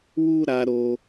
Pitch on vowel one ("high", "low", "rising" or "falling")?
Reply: high